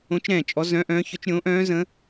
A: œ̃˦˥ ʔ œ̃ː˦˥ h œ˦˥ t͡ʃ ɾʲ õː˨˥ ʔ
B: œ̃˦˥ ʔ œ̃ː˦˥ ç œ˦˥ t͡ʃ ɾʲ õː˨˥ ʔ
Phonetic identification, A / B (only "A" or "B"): B